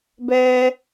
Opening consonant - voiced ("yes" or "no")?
yes